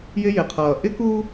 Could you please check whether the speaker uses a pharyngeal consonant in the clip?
no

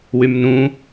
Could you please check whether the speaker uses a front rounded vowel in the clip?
yes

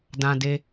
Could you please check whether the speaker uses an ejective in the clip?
no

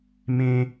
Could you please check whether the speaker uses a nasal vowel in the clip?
yes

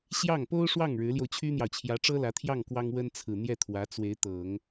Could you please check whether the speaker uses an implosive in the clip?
no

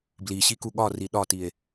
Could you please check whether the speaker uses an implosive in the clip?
yes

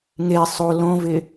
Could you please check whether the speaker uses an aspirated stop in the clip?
no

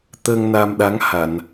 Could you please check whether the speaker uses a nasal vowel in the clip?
no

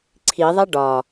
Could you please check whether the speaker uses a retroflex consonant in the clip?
yes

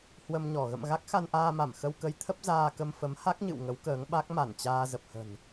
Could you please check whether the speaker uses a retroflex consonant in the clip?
no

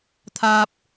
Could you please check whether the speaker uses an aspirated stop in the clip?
yes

